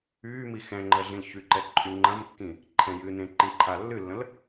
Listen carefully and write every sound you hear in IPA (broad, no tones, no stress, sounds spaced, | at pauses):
yː m i x ɛ̃ ŋ͡ǃ ə ɮ ĩ l ç y ǃ ɛ ǃʼ y ŋ͡ǃ ɐ̃ m kː ĩ | ǃʰ ɛ̃ j ɨ n ẽ ǃ ĩ ǃʰ a lː ɨ lː ə̃ l